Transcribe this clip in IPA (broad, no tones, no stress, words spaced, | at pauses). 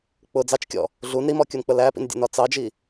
k͡pʊ d͡zɑt͡ʃkʲɔ̰ | ɮun ɾimɔkʲunk͡pə læpḭndʲə̰nɒ t͡sɑd͡ʒi